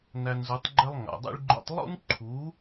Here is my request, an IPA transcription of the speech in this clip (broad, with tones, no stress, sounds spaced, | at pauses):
n æ˧ n z u˩˥ tˤ ɡ͡ǃ ɛ˥ lˠ ŋ a̰˩ dˤ ḭ˥ ɭ ɡ͡ǃ o̰˥ tˤ lˠ ṵ˥ n ǃʰ u˩˥